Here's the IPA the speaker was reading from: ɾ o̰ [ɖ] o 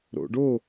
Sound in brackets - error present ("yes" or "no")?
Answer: no